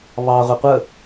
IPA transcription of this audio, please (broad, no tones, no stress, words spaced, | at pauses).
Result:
βɑ ʁʷiqʷə